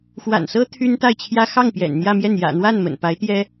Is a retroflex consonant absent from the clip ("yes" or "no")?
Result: yes